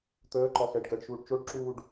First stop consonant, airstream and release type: plain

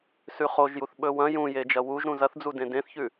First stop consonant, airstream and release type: implosive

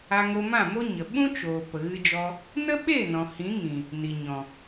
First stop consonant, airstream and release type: implosive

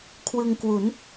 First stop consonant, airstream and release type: aspirated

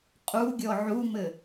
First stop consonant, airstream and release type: ejective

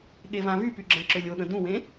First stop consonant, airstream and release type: implosive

